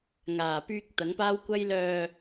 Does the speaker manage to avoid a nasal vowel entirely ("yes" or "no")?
yes